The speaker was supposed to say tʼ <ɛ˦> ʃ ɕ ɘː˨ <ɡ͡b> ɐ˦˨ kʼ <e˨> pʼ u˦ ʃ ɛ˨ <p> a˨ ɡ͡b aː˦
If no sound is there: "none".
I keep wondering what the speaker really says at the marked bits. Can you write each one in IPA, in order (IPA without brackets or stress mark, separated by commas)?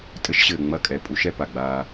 ɘ˦, ŋ͡m, ɛ˨, p